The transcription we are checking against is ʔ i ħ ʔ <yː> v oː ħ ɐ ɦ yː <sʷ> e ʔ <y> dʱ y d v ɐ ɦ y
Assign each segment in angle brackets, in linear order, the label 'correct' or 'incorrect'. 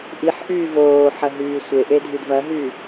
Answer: correct, correct, incorrect

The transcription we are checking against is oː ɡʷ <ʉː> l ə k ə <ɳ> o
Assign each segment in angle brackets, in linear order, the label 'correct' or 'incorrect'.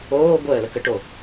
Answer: incorrect, incorrect

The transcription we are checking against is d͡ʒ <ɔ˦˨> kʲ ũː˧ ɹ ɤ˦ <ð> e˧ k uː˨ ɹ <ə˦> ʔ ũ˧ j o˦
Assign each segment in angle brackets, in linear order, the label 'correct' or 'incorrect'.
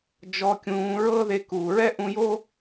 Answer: incorrect, correct, incorrect

